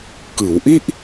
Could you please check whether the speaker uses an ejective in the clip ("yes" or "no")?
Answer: no